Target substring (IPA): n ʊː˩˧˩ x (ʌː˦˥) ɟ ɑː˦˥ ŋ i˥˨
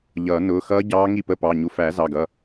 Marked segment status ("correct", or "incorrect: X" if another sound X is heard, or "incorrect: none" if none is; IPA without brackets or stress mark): correct